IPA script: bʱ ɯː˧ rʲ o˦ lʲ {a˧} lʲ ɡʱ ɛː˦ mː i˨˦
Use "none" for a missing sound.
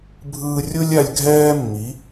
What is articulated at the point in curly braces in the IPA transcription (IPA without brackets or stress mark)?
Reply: a˧